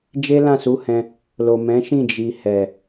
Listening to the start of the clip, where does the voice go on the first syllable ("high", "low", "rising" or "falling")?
high